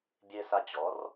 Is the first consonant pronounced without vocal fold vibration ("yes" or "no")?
no